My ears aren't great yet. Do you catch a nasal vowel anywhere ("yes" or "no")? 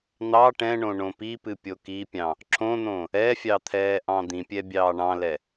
yes